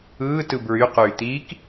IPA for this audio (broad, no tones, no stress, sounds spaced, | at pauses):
ɯː t ɯ b ɹ y q yː t̪ iː k